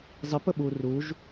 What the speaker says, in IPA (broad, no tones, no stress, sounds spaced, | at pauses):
zˤ i p ə ɓ u r u ʒ